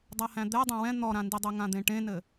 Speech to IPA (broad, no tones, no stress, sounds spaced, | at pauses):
dˤ a h æ̃ d̪ ɛ dˤ æ̃ w ɛ̃ n̪ ɔ ɾ ã n d i dˤ e ŋ ã d̪ ẽ ʈ ẽ n ɘ